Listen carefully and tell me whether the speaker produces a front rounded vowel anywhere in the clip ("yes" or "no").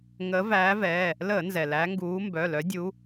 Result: yes